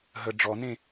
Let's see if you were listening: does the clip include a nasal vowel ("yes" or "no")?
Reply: yes